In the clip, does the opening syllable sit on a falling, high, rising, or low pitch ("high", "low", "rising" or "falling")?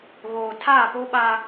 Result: low